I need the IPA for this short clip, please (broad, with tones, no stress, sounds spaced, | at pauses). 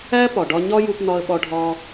æ˥ p ɒ˩ ɖ ɒ˧ ɲ ɒ˥ j u˧ p n̪ ɒ˧ ə̯ ɓ ɒ˧ ɖʱ ɒ˧